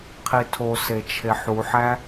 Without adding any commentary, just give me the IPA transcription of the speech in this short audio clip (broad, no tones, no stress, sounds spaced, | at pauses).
qʰ i tʰ o s e t͡ʃʰ e ħ u ħ æ